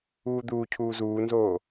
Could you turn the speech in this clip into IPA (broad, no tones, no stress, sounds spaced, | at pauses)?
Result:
uː d̪ uː cʰ uː z uː n z oː